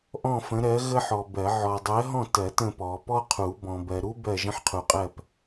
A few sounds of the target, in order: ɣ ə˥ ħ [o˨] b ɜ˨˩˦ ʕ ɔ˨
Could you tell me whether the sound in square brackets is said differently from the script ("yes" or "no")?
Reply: yes